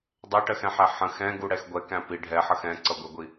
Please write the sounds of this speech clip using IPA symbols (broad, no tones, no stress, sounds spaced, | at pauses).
dˤ æ ʈ ɜ x ɛ̃ ħ æ ħ ə̃ x ɛ̃ ɡ u ɽ ɛ x ɡʷ ɛ k æ̃ p i ɖʱ ɛ ħ ʌ x ɛ̃ ǀ ʌ ɡʷ ɛ ɡʷ i